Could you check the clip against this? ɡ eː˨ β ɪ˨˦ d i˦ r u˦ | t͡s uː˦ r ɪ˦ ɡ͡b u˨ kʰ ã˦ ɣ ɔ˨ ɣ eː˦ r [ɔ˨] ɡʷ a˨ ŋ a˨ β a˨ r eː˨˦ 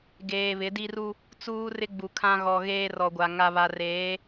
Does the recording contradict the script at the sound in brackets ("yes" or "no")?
no